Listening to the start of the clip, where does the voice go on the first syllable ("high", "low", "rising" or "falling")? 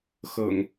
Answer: low